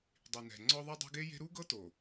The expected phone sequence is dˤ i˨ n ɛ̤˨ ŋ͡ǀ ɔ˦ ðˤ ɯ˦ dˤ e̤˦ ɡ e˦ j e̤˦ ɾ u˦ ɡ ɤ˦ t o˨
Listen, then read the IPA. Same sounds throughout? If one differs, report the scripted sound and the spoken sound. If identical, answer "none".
none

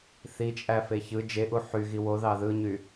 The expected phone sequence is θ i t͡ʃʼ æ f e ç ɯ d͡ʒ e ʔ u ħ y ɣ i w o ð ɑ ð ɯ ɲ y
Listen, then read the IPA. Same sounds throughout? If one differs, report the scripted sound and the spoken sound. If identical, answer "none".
none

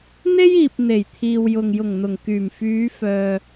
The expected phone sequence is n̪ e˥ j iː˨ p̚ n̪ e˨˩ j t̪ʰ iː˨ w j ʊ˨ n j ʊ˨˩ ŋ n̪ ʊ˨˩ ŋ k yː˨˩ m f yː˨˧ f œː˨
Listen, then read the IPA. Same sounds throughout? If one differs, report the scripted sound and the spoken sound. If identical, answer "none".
n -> ŋ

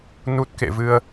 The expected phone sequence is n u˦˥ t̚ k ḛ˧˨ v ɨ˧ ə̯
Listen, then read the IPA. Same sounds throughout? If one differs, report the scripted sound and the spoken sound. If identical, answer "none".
none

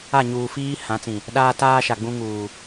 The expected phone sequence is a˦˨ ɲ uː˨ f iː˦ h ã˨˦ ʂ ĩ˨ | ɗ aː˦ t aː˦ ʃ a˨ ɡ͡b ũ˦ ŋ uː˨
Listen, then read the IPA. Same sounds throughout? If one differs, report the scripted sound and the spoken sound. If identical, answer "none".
ʂ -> t͡s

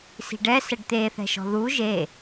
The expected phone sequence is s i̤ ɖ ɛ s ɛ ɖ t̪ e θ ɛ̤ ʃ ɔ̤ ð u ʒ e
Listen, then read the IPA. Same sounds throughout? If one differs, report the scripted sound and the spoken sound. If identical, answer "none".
none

